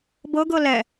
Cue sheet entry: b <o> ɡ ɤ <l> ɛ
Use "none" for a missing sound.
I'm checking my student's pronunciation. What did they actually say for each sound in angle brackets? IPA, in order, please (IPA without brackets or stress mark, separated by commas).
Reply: ɤ, l